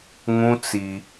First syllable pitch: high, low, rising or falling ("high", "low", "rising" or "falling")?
high